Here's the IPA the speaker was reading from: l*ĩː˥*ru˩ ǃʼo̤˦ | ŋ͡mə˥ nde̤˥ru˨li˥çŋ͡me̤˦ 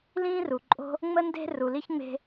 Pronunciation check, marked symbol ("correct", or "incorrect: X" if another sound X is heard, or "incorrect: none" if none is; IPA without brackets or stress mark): correct